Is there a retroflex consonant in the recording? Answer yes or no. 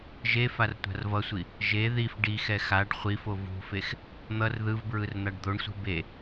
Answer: yes